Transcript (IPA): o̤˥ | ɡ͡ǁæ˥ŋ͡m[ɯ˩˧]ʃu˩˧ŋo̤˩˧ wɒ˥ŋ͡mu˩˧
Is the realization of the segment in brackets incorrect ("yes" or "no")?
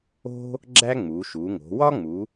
yes